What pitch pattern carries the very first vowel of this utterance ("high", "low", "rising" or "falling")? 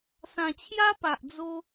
low